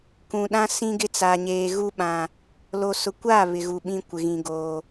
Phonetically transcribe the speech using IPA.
k ũ˨ ɗ ã˦ s ĩ˦ ɡ ɪ˦ t͡s a˨ ɲ eː˨ ɣ u˦ ɓ ã˨ | l o˨ s ʊ˨ kʷ aː˦˨ β ɪ˨ ɣ u˨ ɓ ĩ˦ kʷ ɪ˨ ɣ ĩ˨ ɡ oː˨

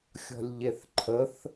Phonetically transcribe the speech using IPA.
xʲ ɔ̤ lʲ ʎ e θ ǃʰ ə θ

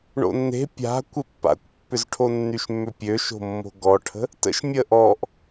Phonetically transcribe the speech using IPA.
ɳ o̰ nː e̤ pʲ a̤ kʷ ɪ pː a̰ kʷ pː ʏ z ʈʰ o nː y ʃ mː ʏ pʲ ø ʃ o̤ mː o̤ ɡ ɔ ʈʰ ə̤ | t ə̰ ʃ mʲ əː ʔ ɔ ʔ

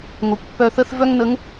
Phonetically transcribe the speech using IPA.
ŋ o˩ kʷ pː œ˧ θ ə˥ θ v œ˥ ŋ n ə˧˥ ŋ

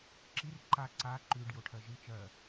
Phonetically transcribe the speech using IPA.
ǁ i r ǃ a ǀ a ǃ ʉ ɖ j o ʈʰ ɜ ʒ ɨ t͡ʃ ɜ

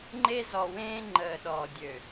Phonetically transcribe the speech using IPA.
ŋ͡ǃ e˦ z ɔ˨ w ẽː˦ ŋ͡ǃ əː˨ ɗ ɔ˨ dʲ ø˨

